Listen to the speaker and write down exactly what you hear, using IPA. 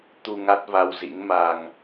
t̪u˧ ŋa˦˥t̚va˧wzḭ˧˥ŋma˧ŋ

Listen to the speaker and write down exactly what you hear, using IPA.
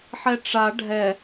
ħɛʈ͡ʂa ɖʱɛ

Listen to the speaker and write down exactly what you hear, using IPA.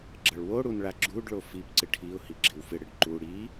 ɡ͡ǁʌɭwoɽun ɭaɡ͡ǁuɖɭo fipǀɪ ʈʰiʊ̯hi ɡ͡ǁɪwfɪɽɪɖ ǃu ɽi

